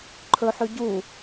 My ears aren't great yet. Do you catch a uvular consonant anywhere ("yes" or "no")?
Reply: no